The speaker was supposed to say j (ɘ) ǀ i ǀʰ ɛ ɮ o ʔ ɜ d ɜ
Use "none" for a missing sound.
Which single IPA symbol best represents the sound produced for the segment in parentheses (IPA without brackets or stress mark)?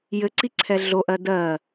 ɘ